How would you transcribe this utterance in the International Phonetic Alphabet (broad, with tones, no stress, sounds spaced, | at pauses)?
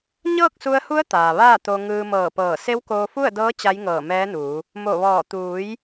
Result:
ɲ ɤː˥˨ k̚ s u˧ ə̯ h u˧˥ ə̯ t̪ aː˩ ʋ aː˥˨ t̪ o˧ ŋ ɯː˧ m ɤː˧˩ p ɤː˧˩ s e˧˥ w k oː˧ f u˥˨ ə̯ d ɤː˧˥ t͡ɕ a˧˥ j ŋ ɤː˧˩ m ɛː˧˥ n uː˩˧ | m o˧˩ ʋ ɔː˧˩ t̪ uː˩˧ j